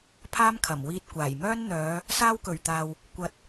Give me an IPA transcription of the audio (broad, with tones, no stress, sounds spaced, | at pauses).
pʰ aː˥ m kʰ ɐ˨˩ m w iː˧ t̚ kʷ aː˨˩ j m œː˥ n n̪ œː˨˧ | s aː˥ w k ɵ˨˩ ɥ t̪ aː˨ w | kʷ ɐ˨ t̚